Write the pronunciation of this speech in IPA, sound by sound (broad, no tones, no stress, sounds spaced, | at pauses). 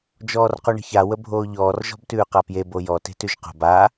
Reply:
d͡ʒ ɔː r q u ɳ ə̤ ç a w ə bʱ oː ʎ ɔː r ʒ ɔ̤ b t ʉː q a p j e b o j ɔ t e̤ t ʉ ʒ q o̤ b a